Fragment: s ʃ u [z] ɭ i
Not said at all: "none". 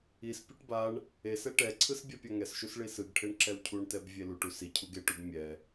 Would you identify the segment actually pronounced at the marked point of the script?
s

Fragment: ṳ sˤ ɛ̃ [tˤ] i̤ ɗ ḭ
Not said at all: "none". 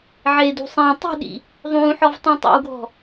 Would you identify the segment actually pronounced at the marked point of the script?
tˤ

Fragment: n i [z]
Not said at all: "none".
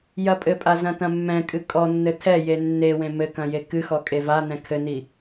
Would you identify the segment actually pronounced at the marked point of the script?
none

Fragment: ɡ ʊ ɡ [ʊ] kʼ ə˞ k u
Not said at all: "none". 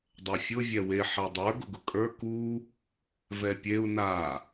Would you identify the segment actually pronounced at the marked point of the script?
ʊ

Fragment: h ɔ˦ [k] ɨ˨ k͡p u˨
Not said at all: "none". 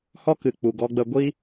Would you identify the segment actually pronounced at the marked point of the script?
k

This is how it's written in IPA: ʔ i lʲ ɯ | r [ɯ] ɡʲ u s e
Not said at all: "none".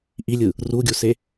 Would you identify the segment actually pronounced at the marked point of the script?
u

